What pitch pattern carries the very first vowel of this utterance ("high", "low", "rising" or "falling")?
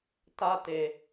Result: high